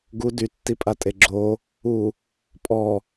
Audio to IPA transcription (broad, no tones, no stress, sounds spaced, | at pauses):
ɡ u d y tː i pʼ a tʼ e ɡ͡ǁ o | u | pʼ ɔ